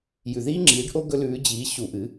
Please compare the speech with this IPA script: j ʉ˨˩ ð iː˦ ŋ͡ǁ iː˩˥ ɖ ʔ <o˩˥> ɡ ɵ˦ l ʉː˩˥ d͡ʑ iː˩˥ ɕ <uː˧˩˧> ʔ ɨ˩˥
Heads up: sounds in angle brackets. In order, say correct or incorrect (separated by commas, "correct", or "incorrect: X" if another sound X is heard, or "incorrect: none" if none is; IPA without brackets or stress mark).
incorrect: o˦, incorrect: u˧˩˧